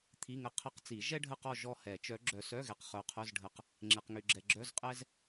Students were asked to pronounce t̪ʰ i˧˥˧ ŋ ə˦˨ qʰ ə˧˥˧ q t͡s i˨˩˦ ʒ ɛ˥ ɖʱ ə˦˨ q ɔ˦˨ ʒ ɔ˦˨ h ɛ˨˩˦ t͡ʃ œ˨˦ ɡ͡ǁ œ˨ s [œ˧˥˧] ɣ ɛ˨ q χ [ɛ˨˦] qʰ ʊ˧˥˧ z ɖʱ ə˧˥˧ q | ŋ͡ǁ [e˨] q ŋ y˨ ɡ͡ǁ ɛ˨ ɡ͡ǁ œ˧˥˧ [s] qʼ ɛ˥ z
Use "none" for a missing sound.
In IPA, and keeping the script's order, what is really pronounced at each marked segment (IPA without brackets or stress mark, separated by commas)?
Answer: œ˧˥˧, œ˨˦, e˨, z